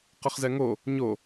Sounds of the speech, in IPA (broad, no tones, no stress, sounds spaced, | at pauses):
q ə χ z ɛ ŋ o | ɲ o